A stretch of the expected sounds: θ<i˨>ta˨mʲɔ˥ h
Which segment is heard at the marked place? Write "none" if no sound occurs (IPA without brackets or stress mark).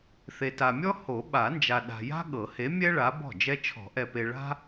e˨